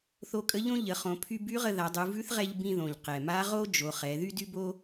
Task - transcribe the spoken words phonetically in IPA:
θ o˧ kʼ ə˧˥ ʎ õ˥ ʎ ə˩˧ χ õ˩˧ pʰ y˧ b y˧˥ ʁ ə˧ ð a˩˧ dˤ u˩˧ v ʉ˧˥ θ ʁ ɛ˧ ʎ b ĩ˧ ð õ˩ ʎ q ɛ˩ m a˧˥ ʁ o˥ d͡ʒ o˩˧ χ ɛ˩˧ ð y˥ d y˥ b o˥

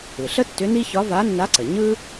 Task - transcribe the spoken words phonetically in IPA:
ɯ˩ ɬ ə˥ tː ʏ˧˥ n i˥ ç ɒ˧˥ v a˧˥ nː a˧˥ ǀ ə˩ ɲ ɯ˥

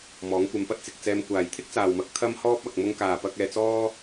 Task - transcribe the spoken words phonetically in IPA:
m ɔː˨˥ ŋ kʷ ɐ˧ m p ɐ˥ t̚ t͡s ɪ˨ k̚ t͡s ɛː˧ m kʷ aː˨ j t̪ʰ ɪ˥ k̚ t͡s aː˨ w m ɐ˨˥ k̚ t̪ʰ ɐ˥ m h ɔː˥ p̚ ɐ˧ k̚ m ʊ˧ ŋ k aː˨ p ɐ˧ k̚ ɛː˧ t͡s ɔː˥

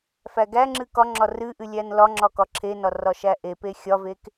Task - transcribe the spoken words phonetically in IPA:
f æ ɡ æ ŋ͡ǁ ɨ k ɒ ŋ͡ǁ ɒ r ɨ ʔ ɨ lʲ æ n l ɒ ŋ͡ǁ ɒ k ɒ ǁʰ e n ɒ r ɒ ʃ æ ʔ e p e xʲ ɒ v e k

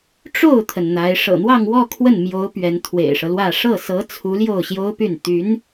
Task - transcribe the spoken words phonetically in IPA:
ʈ͡ʂ o˥˩ ʊ̯ t̪ʰ ə˩ n n̪ a˧˥ ɪ̯ ʂ ɤ̰˨˩ n̪ w ɑ˥˧ ŋ w ɔ˥˧ kʰ w ə˥˩ n m j o˧˥ ʊ̯ p ɥ ɛ˧˥ n t̪ʰ w ḛ˨˩ ɪ̯ ʂ ɤ˦ l w ä˥˧ ʂ ɤ˥˩ s ɤ˧˥ t͡sʰ u˧˥ l j o˥˩ ʊ̯ ɕ j o˥ ʊ̯ p y˥˩ n t̪ y˧˥ n

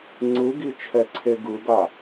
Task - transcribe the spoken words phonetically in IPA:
ŋ͡ǀ ɯ ɡ i t͡ʃʰ ɛ ǀʰ e ɡ ɯ ɡ a

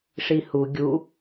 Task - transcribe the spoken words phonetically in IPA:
ʂ i h u ɡʲ u

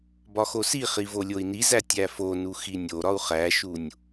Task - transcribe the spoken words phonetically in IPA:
b ɒ x o s i χ i v o lʲ o i̯ n i z æ tʲ æ f o n u x i nʲ o ɾ ɒ u̯ χ æ ʃ u nʲ

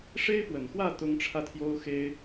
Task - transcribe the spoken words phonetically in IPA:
ʂ e˦ ɪ̯ p w ə˨˩ n x w ä˥˨ t̪ ʊ˦ ŋ ʈ͡ʂʰ ä˥˨ t̪ʰ j o˦ ʊ̯ x e˦ ɪ̯

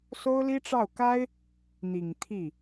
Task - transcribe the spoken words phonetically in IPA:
s o˥ ʊ̯ l i˥ ʈ͡ʂ ɑ˥˩ ʊ̯ k a˥ ɪ̯ | n̪ i˨˩ ŋ t̪ʰ i˥˩

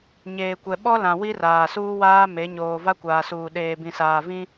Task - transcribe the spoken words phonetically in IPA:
ɲ eː˨ kʷ ɛ˨ ɓ ɔ˦ l ã˨ w i˦ r aː˨ s uː˦ w aː˦ m e˨˦ ɲ oː˨ v a˦ kʷ aː˨ s uː˨ ɗ eː˨ b ĩ˨ s aː˨ v ĩ˦

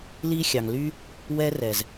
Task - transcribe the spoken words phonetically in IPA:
l i˦ xʲ ɑ˨ ŋ l y˦ | w ɛ˦ r ɛ˨ z

